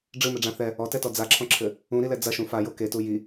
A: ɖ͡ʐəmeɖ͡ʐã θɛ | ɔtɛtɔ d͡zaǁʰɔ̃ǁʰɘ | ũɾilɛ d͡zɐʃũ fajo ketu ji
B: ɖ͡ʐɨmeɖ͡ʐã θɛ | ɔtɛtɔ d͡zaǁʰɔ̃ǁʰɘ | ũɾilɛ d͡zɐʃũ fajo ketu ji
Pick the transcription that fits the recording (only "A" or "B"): B